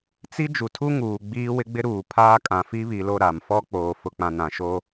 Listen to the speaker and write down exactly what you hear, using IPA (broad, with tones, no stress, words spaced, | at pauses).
t͡si˦ d͡ʒu˨tʰu˦ŋuː˨ ɡ͡biː˦wɪ˦ɡ͡bɪ˦ ɾuː˨pʰaː˦kʼã˨ fi˦βi˨lo˦˨ ɾa˨mfɔ˦k͡poː˨ fʊ˨k͡pã˨ nã˨ʃo˦